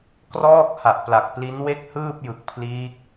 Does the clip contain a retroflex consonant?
no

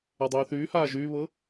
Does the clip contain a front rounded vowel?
yes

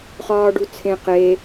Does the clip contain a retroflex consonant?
yes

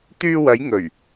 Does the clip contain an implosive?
no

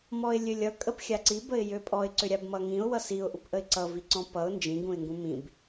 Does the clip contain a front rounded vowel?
yes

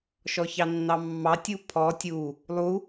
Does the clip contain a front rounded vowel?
no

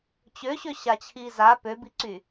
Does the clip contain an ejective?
no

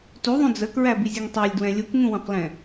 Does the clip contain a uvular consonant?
yes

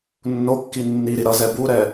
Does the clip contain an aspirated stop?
no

